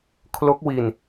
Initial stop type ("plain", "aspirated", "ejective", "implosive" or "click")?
aspirated